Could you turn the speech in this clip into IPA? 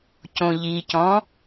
cõʎicɔ̃

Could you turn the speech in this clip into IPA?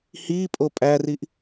hipʼo pʼæriʔ

